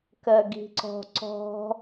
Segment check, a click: present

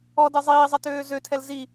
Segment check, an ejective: absent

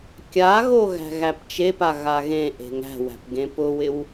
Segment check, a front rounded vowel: absent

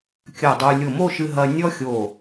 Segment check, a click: absent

